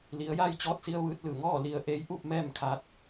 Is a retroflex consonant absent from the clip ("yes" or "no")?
yes